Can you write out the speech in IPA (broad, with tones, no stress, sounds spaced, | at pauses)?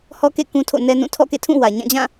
h ɔ˦ k ḛ˦˨ k ũ˦ tʰ o̰˦˨ n ɛ˦ n ũ˦˨ tʰ ɔ̰˦˨ k ḛ˦˨ tʰ ũ˦˨ w ä˨ ɲ ã˦˨ d͡ʑ ã˦˨